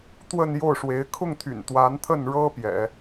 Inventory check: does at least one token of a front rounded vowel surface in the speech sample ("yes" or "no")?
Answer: yes